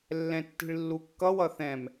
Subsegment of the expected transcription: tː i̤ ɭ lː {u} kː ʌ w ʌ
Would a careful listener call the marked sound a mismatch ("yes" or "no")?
no